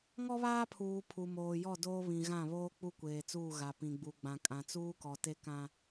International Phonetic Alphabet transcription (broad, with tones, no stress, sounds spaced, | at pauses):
ŋ ɔ˦ β aː˦ pʰ uː˨ pʰ u˨ m oː˨ j ɔ˦˨ d oː˦ β ĩ˨ ɣ ã˦˨ β oː˦ k͡p u˦ kʷ eː˨ t͡s uː˦˨ ɣ a˨ p ĩ˨ ɡ͡b u˨ ɡ͡b ã˨ kʼ ã˨ t͡s uː˦ k ɔ˨ t e˦ k ã˦